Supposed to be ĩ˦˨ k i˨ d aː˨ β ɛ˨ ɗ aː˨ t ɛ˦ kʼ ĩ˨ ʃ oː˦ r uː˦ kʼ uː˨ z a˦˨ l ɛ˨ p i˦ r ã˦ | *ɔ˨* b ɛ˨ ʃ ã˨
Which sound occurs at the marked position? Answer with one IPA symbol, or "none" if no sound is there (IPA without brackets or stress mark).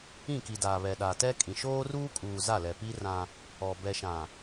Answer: ɔ˨